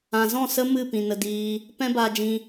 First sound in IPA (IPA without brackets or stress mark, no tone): ã